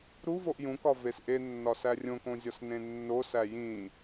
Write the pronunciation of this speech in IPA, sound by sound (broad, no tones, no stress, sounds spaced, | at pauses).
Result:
ɾ u v o ʔ j ũ k ɒ v e s ʔ e nː ɒ s æ rʲ õ k õ zʲ ɒ s n ẽ nː o s æ j ĩ